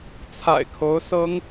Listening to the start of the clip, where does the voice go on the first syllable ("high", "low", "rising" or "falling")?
low